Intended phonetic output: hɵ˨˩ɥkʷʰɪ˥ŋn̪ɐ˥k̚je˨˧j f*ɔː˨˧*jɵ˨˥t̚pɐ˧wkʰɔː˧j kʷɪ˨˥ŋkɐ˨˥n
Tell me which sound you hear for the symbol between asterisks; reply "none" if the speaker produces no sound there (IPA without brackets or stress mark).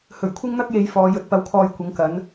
ɔː˨˧